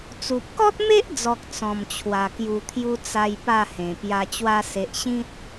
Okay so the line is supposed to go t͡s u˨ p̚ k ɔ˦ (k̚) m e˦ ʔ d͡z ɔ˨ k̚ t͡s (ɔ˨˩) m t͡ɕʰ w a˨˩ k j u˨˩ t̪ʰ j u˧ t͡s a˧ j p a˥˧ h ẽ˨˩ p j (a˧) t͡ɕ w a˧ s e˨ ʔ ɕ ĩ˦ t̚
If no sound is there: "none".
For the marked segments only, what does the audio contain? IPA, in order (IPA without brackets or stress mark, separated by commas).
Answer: t̚, ɔ̃˨˩, a˧